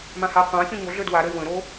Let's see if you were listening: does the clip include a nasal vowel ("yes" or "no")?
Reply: yes